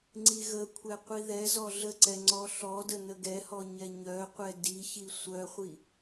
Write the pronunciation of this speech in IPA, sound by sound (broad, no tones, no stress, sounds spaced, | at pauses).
ŋ͡ǀ i ɣ ə kʷʰ ɛ qʷ i ð ɛ z ɔ ɮ ə ǀ ɛ ŋ͡ǀ ɔ ɬ ɔ d ə n ə ɡ ɛ h ɔ ɲ ɛ ɲ œ qʷ ɛ d i ç i sʷ œ χʷ i